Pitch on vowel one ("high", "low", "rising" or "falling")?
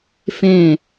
falling